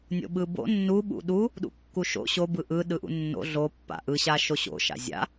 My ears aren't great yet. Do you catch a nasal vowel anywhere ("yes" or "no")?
no